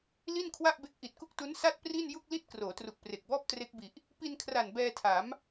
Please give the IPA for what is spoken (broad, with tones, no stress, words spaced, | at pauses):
li˥˩nkʰwa˥˩ʔbe˦˥k̚ ʔi˨˩t̚ku˥˩k̚tu˦˥n sa˥˩t̚pri˥˩n ju˥˩k̚li˥˩t̚ kroː˩˦tru˨˩k̚pre˨˩k̚bɔː˥˩p̚ tre˦˥k̚bi˨˩ʔ | pi˧nkʰra˨˩n bɛː˧tʰa˩˦m